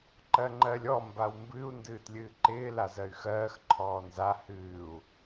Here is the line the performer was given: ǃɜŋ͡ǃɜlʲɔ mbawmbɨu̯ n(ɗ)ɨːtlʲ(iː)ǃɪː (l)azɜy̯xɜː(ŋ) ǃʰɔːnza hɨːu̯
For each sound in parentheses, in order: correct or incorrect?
incorrect, incorrect, correct, incorrect

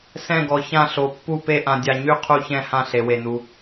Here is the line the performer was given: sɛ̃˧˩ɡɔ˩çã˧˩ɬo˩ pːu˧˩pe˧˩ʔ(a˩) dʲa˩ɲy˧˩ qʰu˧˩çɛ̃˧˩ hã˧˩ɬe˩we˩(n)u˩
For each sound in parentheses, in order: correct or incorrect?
incorrect, correct

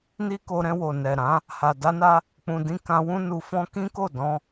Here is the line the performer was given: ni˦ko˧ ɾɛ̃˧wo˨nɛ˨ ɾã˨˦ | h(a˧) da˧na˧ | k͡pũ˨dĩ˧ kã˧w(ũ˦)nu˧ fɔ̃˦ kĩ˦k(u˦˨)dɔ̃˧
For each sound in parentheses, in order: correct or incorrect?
incorrect, correct, incorrect

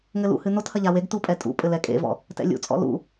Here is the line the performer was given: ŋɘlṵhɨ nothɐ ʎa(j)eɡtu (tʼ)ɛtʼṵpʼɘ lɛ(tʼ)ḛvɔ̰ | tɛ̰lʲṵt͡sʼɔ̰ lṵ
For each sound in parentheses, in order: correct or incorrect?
incorrect, incorrect, incorrect

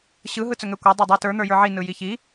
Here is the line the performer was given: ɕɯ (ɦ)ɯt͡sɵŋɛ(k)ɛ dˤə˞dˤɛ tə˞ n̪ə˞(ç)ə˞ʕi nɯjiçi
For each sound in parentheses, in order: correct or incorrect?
correct, incorrect, incorrect

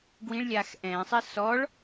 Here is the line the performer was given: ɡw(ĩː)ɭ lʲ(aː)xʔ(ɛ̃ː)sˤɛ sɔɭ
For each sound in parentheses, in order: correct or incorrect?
incorrect, correct, correct

